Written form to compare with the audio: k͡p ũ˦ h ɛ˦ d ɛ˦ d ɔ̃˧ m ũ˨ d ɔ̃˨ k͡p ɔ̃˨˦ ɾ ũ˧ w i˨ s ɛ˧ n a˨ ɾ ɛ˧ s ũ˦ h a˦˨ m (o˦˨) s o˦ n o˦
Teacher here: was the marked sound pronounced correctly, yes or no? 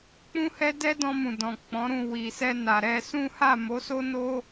no